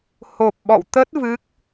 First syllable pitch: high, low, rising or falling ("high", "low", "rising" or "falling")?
low